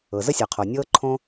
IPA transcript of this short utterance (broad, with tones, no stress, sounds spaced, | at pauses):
ɤ˩ z ə˥ sʲ ɔ˩ qʰ o˩ nʲ ɤː˥ ǃʰ õ˥